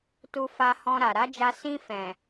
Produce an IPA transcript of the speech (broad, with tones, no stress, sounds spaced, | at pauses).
t u˧ f a˧ h ɔ̃˧ ɾ a˨ ɾ a˨˦ d͡ʒ a˧ s ĩ˧ f ɛ̃˨